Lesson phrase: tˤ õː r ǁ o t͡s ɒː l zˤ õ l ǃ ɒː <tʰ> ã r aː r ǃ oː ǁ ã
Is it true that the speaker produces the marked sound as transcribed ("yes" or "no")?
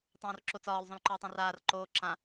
no